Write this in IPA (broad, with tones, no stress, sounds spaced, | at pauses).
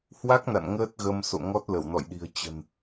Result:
h w a˦˥ k̚ n a̰˧˨ n ŋ əː˦˥ t̚ ɣ ə˧ m s o̰˧˨ ŋ ɔ˦˥ t̚ l ə˧˩ w n ɔ̰˧˨ j ɗ i̤˨˩ ə̯ t͡ɕ ə̤˨˩ n